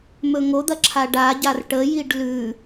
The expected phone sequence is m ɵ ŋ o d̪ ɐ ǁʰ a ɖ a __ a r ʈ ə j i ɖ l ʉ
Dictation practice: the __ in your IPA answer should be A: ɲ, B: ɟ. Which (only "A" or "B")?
B